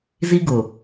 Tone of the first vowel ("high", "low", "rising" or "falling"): high